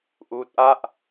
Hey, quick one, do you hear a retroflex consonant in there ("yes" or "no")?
no